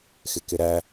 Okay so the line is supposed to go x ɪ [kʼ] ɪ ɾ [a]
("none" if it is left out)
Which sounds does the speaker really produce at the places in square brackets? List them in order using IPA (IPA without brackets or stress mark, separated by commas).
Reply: k, æ